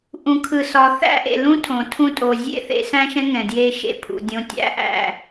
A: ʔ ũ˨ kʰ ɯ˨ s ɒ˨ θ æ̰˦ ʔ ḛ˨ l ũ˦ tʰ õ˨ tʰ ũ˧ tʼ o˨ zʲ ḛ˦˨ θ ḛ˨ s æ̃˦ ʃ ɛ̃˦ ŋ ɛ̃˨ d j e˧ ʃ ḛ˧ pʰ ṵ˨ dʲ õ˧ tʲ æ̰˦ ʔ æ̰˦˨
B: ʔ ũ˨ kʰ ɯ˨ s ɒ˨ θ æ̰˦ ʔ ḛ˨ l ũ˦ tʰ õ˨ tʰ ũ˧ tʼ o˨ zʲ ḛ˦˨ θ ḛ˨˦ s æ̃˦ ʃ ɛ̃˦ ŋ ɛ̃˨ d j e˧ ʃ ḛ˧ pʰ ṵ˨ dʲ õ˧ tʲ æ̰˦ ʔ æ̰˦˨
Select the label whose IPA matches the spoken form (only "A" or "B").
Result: B